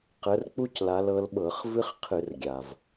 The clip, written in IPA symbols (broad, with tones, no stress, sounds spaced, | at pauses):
q ə˨˦ r k͡p u˥ c l a˨˦ l ɤ˨˦ l ɓ ɤ˧˩˧ χ v ɨ˥ χ qʰ ɨ˧˩˧ r ɡʲ a˩ v